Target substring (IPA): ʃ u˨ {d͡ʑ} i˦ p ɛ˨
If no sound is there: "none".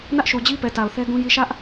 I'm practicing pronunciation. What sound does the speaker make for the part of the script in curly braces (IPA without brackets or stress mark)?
d͡ʑ